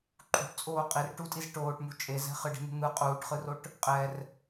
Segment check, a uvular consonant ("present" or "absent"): present